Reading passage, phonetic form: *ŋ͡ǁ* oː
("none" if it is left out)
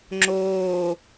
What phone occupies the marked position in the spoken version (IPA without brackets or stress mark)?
ŋ͡ǁ